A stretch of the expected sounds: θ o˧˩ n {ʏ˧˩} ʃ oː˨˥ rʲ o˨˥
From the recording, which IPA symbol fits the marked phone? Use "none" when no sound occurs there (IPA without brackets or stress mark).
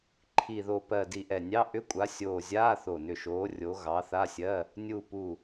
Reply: ʏ˧˩